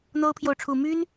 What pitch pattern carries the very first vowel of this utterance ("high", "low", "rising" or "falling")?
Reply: high